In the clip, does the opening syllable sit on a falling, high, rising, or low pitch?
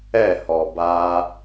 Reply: falling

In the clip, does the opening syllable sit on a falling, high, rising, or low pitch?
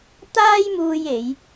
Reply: high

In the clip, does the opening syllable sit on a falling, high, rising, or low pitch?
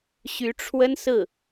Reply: rising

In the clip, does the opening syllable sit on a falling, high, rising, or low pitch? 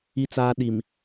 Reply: high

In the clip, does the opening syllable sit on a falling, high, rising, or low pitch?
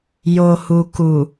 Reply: low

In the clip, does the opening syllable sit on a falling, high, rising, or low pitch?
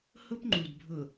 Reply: high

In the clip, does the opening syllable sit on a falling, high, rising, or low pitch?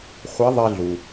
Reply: rising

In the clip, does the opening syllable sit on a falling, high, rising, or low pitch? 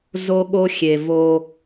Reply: high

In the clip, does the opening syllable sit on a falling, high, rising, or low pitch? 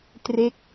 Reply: falling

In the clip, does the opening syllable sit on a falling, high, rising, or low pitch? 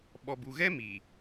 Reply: low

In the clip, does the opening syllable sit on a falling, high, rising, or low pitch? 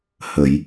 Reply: low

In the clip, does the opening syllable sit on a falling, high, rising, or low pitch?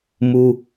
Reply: high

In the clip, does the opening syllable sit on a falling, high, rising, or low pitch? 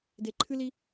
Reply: low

